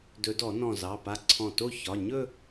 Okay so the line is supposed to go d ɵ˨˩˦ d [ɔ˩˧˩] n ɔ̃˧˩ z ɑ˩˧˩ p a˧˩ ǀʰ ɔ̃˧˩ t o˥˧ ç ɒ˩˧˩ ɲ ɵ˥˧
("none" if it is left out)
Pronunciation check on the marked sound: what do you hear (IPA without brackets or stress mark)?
ɔ˨˩˦